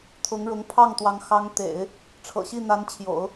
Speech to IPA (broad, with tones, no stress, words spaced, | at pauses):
t̪ʰʊ˧˥ŋɻʊ˧˥ŋ pʰɑ˥˩ŋt̪wɑ˧˥ŋ xɑ˧˥ŋt̪ḛ˨˩˦ɪ̯ | ʈ͡ʂʰɤ̰˨˩ɕi˥˩n̪a˧˥nt͡ɕʰjo̰˨˩˦ʊ̯